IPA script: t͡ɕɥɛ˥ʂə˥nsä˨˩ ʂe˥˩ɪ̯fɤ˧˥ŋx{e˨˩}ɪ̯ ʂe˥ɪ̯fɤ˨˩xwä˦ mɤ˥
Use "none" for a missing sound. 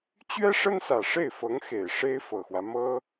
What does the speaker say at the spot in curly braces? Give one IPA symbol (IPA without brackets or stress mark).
e˨˩